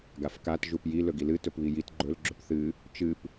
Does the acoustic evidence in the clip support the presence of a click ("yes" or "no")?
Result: yes